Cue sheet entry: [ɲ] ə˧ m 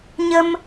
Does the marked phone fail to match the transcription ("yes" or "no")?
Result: no